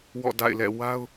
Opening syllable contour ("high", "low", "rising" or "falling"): falling